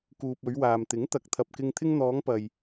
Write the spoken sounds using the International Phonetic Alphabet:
k uː˨ p̚ ɵ˨˧ ɥ w aː˨ m t̪ ɪ˨˥ ŋ t̪ ɐ˨˥ k̚ t̪ʰ ɐ˨ p̚ k ɪ˧ ŋ t̪ʰ ɪ˧ ŋ n̪ ɔː˨˧ ŋ p ɐ˨ j

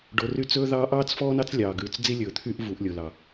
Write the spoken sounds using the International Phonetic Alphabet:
ɖ o˨ r y˦ t͡s ɵː˦ ð ɑː˦ ʔ ɑː˦ t͡s f ɔː˦ n ɑ˦ t͡s lʲ ɑː˨ ɡ ʉː˨ t͡s d͡z i˦ lʲ ɵː˨ t̪ʰ yː˦ ʔ v u˨˦ ʔ lʲ o˨ l ɑ˨

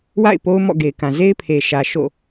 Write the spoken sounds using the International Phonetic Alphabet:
w a̰˦˨ ɪ̯ p o˦ ʊ̯ m ɔ̰˦˨ ɡ e˨ ɪ̯ k ã˨ z e˦ ɪ̯ pʰ e˨ ʃ ä˨ ʃ o̰˦˨

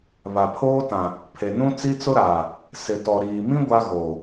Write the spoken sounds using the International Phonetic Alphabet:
β a˨ pʰ oː˦ t ã˨ | pʰ e˨ n ũ˦ t͡s i˦ t͡s ʊ˦ ɾ aː˨ | s ɪ˨ t ɔ˨ ɾ iː˨ m ĩ˦ ɡʷ a˦ ɣ oː˨

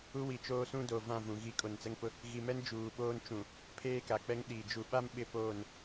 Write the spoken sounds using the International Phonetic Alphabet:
u˦ w i˨ t͡ʃ oː˦ s ũ˦ d o˨ v ã˦˨ v ũ˨ ɣ i˨˦ kʼ o˨ n t͡s ɛ˦ ŋ p ʊ˦ | ɣ i˨ m ɛ˦ n d͡ʒ uː˨ ɓ oː˦ n t͡ʃ ũ˨ | pʰ eː˦ k a˨ k͡p ɛ˦ ŋ ɗ iː˨ d͡ʒ u˨ ɓ a˦ m ɓ ɪ˦ p oː˦˨ n

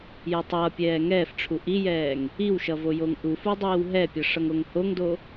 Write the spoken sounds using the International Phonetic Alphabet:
j ɛ tˤ ʌː pʲ ɛː ŋ ɛː f ʈ͡ʂʰ u ʔ i j ɛː ŋ | i w ʃ ʌ v o j o ŋ ʔ u f u dˤ iː w ɦ ɛ pʲ ʌ ʂ ʌ ŋ o ŋ h o ŋ d o

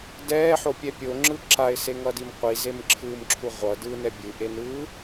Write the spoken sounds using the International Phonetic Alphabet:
d ɛː ħ o pʲ ɛ pʲ o ŋ͡ǁ ɯ ǁ a ɪ̯ s e ŋ ʌ d i m qʷ i z e m ǁʰ ɯː m ǁʰ u ʁʷ ʌ d ɯː n ɛ bʲ ɯ ʔ e n ɯː

